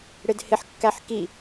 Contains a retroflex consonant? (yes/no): yes